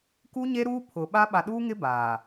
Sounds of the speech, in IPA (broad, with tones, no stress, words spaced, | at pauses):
ku˦ɲe˦ ɾuː˦ pʰʊ˨ɓa˦ ɓa˨ɗuː˦ŋɪ˦ baː˨